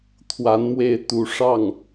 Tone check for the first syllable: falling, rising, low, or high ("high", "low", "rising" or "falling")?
rising